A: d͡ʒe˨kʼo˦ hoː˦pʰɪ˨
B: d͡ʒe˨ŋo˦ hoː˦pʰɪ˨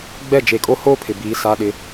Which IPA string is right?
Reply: A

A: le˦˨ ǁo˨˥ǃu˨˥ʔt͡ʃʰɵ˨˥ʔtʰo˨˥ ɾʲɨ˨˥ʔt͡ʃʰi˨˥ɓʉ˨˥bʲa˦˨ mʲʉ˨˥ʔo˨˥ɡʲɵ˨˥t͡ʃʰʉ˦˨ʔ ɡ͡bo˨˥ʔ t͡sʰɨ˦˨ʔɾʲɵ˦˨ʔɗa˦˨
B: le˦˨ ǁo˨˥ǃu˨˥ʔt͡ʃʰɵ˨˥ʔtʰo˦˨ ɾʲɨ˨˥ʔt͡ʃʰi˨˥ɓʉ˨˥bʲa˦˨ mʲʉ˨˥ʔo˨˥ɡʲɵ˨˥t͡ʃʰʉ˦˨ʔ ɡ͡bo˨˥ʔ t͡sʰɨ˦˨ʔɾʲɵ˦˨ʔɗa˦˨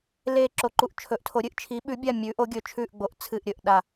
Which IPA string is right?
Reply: A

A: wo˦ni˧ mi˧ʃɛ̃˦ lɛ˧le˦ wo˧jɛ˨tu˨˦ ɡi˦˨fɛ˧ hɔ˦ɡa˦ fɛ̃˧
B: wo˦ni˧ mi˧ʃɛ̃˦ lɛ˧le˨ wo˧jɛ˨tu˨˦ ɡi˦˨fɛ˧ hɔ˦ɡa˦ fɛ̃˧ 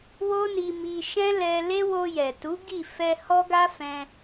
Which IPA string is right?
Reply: A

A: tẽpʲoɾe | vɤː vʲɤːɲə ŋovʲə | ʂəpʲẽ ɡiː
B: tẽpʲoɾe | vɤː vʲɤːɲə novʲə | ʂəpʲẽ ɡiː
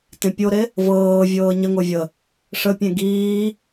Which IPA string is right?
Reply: A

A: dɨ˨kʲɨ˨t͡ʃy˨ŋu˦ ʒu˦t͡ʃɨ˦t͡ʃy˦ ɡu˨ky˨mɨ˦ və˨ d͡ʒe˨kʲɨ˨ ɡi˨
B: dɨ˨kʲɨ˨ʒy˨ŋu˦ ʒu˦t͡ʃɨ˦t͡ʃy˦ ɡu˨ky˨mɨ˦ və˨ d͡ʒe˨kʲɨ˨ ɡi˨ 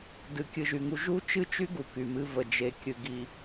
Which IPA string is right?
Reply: B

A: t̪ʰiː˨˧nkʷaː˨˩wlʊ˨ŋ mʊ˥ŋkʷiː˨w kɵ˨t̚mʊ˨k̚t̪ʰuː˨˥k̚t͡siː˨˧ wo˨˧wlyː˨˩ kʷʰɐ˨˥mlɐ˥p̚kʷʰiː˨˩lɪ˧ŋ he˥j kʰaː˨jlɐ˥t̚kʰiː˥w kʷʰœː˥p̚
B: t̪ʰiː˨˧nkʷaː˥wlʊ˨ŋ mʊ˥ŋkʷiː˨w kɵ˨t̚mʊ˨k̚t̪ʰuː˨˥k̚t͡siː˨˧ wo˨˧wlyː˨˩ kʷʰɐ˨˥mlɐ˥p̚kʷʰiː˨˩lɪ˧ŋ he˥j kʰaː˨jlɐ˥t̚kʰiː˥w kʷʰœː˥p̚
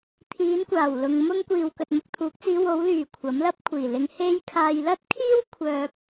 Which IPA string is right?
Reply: A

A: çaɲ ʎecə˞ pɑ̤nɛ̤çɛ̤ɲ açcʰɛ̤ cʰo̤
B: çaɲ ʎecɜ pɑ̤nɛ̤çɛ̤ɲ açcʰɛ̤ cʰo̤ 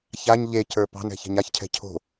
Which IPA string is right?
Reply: A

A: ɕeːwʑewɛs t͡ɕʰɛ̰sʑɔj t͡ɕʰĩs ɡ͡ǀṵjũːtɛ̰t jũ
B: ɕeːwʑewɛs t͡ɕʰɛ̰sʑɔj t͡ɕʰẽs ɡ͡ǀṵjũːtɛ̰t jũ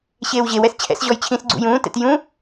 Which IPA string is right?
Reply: A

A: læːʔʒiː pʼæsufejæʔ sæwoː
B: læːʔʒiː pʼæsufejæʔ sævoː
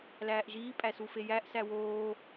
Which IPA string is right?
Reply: A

